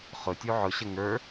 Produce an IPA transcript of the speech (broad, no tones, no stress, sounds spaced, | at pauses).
χ ʊ tʲ u ʕ ʊ ɕ ə ŋ ə˞